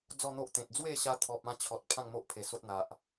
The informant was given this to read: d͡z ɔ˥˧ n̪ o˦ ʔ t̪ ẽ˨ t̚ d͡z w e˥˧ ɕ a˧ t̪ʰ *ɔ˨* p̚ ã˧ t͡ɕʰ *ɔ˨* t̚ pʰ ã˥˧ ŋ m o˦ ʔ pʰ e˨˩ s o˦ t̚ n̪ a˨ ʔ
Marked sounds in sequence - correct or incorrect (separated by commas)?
correct, correct